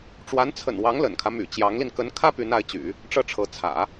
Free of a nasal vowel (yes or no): yes